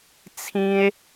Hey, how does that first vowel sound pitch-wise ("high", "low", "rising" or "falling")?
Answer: high